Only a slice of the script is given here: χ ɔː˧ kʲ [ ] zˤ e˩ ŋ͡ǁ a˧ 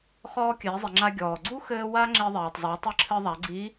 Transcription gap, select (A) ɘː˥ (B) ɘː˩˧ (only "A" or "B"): B